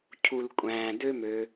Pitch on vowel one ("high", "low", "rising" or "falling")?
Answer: low